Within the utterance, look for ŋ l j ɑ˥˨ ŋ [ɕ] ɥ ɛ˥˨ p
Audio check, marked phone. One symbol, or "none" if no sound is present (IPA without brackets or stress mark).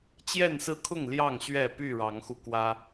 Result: ɕ